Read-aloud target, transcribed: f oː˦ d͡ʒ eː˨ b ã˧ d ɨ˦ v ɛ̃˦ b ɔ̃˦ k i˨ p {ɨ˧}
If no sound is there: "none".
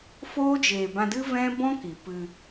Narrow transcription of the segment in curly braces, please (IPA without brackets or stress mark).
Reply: ɨ˧